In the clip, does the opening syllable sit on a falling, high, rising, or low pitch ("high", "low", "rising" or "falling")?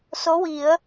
rising